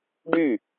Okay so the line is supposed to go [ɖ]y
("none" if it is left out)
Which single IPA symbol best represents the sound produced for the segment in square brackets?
ɖ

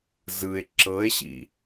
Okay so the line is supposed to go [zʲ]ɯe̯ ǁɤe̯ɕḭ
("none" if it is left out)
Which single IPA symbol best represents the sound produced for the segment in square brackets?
z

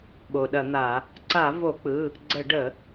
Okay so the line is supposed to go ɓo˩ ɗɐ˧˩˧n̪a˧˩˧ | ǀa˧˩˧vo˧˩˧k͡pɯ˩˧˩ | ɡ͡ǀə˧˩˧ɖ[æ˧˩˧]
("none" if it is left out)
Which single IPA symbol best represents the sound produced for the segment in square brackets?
ə˧˩˧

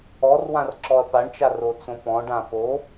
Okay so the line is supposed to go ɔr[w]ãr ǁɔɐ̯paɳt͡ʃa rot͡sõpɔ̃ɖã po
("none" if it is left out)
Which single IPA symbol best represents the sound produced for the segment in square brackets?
w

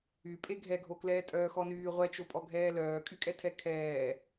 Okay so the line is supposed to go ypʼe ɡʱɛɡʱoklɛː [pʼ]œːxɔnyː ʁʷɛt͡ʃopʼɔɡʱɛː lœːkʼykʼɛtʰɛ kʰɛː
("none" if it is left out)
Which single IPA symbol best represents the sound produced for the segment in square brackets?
tʼ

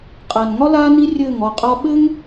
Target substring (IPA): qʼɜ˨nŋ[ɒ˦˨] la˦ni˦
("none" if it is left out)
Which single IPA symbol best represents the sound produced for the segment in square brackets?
ɒ˦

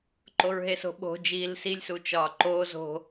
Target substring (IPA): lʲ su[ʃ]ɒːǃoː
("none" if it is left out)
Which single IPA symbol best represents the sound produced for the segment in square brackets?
t͡ʃ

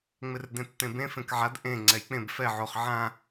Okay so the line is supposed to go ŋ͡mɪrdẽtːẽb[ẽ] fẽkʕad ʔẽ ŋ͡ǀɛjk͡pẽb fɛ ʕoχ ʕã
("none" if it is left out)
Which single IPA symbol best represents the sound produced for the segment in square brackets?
ẽ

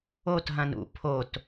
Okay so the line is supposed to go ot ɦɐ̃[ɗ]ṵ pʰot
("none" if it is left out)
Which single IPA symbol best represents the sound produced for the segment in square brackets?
n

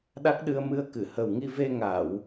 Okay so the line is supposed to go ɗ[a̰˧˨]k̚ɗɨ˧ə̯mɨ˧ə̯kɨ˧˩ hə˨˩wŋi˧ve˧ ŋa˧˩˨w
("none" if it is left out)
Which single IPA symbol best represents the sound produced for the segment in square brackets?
a˦˥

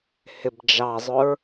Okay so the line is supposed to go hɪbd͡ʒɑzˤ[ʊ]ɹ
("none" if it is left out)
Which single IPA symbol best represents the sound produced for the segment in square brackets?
ʊ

